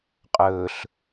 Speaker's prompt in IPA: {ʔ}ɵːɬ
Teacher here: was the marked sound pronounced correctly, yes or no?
no